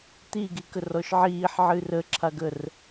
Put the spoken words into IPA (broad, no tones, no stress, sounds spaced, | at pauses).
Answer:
t̪ i ɡ i k ə r ɔ ʃ ʕ iː ħ ʕ ɨː r ə ǁʰ a ɡ ə r